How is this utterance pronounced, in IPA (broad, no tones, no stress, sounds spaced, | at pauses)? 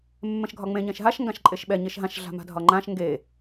mː ɛ̃ ʃ ɡʱ ɒ ŋ͡m ẽ ɲ ɛ̃ ʃ ɦ a ʃ ŋ ɡ ã ʃ ǃʼ e ʃ ɓ ɛ ɲ e ʃ ɦ ã ʃ ɮ a̤ m a̤ dʱ ɒ ŋ͡ǃ ã ʃ ŋ ɡ e